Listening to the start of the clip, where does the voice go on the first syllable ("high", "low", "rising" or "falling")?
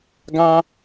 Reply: high